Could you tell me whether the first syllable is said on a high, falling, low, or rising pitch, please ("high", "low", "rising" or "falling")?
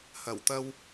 low